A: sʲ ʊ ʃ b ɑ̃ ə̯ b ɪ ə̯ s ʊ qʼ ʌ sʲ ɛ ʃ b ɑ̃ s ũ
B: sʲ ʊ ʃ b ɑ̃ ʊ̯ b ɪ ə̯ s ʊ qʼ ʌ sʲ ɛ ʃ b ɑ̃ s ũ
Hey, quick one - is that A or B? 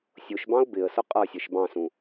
B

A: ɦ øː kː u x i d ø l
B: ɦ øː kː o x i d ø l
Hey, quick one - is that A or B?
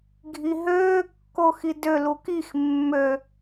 B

